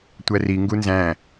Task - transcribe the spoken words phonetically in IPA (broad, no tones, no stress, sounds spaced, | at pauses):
tʷ æ r i ŋ ɡ u n z æ̃